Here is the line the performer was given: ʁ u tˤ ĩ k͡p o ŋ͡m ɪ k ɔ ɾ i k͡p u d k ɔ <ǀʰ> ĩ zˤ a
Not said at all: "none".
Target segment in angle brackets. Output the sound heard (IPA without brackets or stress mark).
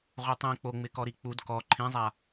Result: ǃʰ